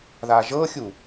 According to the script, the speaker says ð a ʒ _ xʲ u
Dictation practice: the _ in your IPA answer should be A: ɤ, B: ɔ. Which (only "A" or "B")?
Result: A